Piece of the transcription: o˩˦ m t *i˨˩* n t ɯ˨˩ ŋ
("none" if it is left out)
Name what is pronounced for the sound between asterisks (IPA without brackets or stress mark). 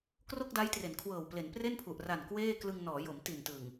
i˨˩